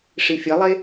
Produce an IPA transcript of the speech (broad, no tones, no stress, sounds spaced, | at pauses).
ʂ i fʲ ɐ lˠ e